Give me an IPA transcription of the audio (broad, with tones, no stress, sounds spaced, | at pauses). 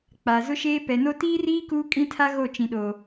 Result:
k͡p aː˨ z ʊ˦ ʃ eː˦ p ɛ˨ n o˦ t iː˦ r iː˦ k uː˦ kʼ ĩ˦ tʰ a˦ ɣ o˦˨ t͡ʃ ĩ˨ ɗ o˨